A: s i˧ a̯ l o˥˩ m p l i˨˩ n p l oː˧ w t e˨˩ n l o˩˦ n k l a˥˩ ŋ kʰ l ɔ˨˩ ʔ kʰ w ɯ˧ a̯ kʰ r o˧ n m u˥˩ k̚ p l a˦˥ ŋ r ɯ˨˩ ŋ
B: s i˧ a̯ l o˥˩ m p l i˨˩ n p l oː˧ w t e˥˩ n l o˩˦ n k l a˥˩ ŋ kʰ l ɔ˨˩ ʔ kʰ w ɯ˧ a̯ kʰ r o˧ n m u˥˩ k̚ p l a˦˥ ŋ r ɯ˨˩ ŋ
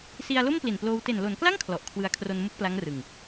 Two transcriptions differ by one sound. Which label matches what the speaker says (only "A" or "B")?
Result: A